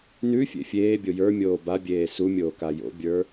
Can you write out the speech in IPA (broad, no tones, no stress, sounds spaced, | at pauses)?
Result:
n ʉ fʲ ḛ fʲ eː bʲ o j ə˞ mʲ oː b a bʲ eː s u mʲ oː k a j o̰ bʲ ə˞